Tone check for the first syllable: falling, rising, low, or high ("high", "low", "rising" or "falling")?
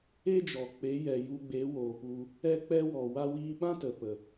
high